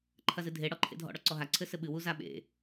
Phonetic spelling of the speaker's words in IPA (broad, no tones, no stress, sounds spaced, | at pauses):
ǃʰ ɐ z ɨ dʱ e ɽ ɔ ǃʰ ḛ dʱ ɔ̰ ɽ ɔ ǀ ɔ ɦ a ǀʰ ɘ s ɘ ɓ ɨ w u z a ɓ ḛ